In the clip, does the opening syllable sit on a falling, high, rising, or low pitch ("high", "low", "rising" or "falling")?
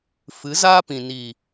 rising